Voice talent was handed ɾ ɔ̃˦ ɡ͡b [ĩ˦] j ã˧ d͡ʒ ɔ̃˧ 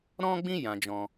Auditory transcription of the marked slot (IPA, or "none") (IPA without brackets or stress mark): ĩ˦